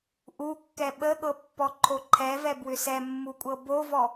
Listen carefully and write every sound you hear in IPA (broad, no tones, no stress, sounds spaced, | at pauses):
ʔ u kː ɛ ɓ ə ɠ ɤ pː ɔ ǃʰ o ǃʰ ɛ v ɛ b w ʏ s ɛ mː u kʷʼ ɤ b o v ɔ